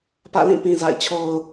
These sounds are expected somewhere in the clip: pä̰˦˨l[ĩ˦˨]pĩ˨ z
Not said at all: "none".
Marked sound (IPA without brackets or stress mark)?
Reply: ĩ˦˨